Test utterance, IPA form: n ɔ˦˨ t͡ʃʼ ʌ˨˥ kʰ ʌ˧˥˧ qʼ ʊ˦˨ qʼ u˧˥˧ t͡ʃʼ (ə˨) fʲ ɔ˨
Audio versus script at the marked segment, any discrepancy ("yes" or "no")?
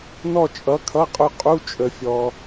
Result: no